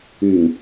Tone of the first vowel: low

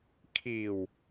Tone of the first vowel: low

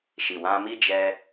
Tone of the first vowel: low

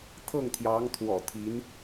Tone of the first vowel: falling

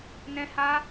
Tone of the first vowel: high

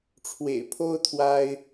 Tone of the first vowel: low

